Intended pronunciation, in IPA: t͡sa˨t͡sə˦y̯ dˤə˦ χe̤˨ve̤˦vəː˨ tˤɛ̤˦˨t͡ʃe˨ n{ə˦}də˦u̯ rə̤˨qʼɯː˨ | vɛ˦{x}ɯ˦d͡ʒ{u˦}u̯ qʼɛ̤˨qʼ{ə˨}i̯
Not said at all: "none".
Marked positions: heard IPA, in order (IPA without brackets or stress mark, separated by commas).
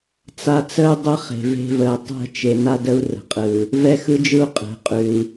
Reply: a˦, x, ɯ˦, ʉ˨